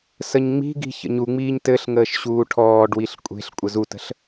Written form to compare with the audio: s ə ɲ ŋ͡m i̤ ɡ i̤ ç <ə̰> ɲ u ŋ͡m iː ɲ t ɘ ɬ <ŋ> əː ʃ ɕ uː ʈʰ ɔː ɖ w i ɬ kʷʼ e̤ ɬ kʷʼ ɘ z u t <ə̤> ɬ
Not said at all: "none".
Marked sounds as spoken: ə̰, ŋ, ə̤

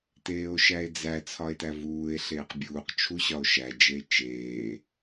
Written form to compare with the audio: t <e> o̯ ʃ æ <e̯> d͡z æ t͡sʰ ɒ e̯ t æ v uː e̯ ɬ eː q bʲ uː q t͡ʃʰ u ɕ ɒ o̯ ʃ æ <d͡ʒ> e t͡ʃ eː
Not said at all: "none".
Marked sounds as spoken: eː, e̯, d͡ʒ

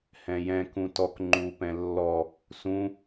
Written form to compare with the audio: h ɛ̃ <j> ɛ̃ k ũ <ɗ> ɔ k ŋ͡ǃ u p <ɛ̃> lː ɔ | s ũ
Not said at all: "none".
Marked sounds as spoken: j, t, ɛ̃

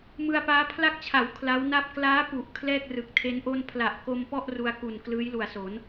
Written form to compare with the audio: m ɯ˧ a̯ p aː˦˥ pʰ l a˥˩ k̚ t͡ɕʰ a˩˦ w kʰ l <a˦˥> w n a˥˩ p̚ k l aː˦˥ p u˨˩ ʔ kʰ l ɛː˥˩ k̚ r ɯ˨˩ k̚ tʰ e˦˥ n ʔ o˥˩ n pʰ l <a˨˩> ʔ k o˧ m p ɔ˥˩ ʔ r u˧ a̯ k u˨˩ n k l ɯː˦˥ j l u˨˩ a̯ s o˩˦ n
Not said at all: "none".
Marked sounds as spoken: a˦˥, a˨˩

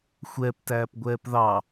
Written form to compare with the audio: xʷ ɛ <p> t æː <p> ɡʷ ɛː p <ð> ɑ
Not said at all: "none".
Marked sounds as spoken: p, p, ð

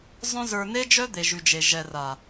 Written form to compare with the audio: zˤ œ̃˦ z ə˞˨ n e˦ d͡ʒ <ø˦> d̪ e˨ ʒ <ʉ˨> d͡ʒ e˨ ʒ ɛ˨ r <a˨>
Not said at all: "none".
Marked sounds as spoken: œ˦, ʉ˨, a˨

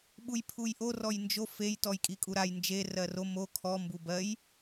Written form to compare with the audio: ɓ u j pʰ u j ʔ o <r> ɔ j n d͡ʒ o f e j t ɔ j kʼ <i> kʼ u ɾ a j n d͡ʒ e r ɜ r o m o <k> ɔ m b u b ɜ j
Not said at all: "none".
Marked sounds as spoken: r, i, kʰ

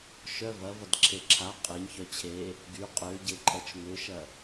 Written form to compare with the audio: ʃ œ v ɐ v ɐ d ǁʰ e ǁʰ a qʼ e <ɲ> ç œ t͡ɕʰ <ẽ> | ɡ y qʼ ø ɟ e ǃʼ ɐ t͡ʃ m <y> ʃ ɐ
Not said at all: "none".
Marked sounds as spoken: ɲ, e, ʏ

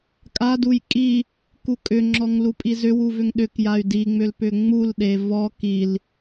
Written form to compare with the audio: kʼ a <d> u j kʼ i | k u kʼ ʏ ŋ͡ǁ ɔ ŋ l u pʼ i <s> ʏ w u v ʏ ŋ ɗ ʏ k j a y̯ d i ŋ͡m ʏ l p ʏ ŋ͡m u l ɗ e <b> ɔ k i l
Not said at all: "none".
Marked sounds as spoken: d, z, v

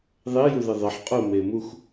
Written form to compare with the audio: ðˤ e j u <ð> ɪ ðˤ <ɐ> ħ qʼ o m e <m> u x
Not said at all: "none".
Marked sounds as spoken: ð, ɐ, m

